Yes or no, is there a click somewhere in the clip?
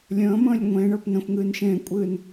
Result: no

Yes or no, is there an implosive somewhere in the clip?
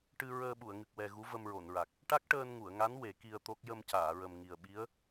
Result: yes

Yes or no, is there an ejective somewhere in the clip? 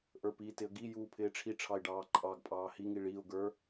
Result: yes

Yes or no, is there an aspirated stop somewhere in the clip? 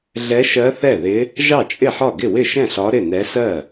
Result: no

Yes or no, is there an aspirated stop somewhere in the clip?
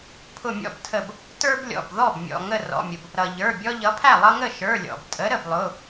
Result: yes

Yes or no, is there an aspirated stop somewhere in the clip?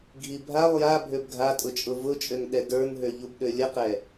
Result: no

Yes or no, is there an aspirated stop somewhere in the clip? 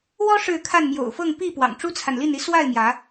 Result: yes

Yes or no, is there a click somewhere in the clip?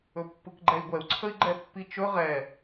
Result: yes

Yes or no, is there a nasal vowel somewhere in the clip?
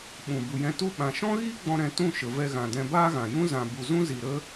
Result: yes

